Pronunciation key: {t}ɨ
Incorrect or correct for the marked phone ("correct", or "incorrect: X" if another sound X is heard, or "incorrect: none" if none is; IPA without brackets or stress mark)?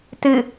correct